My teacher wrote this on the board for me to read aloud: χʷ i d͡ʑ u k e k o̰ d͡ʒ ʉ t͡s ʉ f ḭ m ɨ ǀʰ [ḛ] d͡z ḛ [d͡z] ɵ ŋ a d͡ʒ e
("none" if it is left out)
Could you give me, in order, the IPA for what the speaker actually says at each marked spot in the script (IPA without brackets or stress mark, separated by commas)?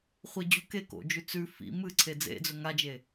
e, d͡z